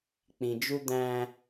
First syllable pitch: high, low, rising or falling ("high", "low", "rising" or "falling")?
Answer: low